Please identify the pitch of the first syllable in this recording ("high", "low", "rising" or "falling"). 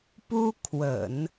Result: high